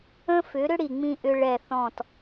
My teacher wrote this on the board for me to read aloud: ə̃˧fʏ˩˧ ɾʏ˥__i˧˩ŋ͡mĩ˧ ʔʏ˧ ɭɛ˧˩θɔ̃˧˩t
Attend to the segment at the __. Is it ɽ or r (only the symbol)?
ɽ